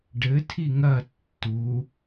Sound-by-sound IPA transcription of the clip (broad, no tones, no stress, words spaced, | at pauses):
ɖɘ tʰiŋɐ tːu